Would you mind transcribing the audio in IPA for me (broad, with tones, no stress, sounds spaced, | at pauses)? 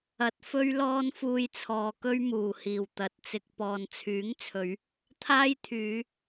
ɐ˨ t̚ f ɵ˥ ɥ l ɔː˥ n f uː˧ j t͡sʰ ɔː˨ k ɵ˥ ɥ m uː˨˩ h iː˨˩ w t̪ ɐ˨ t̚ t͡s ɪ˧ k̚ p ɔː˨ n t͡sʰ yː˨˥ ŋ t͡sʰ ɵ˨˧ ɥ | t̪ʰ aː˥ j t̪ʰ yː˨˧